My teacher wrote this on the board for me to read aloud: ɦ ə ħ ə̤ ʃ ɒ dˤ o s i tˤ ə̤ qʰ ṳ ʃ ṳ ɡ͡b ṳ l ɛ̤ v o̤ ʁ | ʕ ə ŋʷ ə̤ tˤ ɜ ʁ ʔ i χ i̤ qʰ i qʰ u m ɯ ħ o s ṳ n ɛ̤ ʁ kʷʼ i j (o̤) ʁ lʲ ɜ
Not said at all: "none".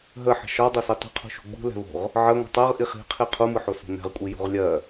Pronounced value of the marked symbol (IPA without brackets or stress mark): o̤